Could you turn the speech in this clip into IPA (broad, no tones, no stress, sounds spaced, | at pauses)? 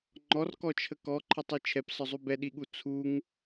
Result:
ŋ͡ǃ ɔ r k ɔ t͡ʃʰ ə k ɔ ǃʰ ə tˤ i t͡ʃʰ ɛ p s ɒ zˤ u b ɛ ɗ i ɠ u t͡sʰ u ŋ